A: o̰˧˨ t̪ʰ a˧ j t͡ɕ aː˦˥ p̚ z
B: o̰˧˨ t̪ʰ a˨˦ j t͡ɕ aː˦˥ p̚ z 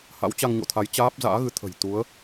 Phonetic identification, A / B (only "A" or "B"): B